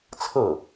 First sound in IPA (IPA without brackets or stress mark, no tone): t͡sʰ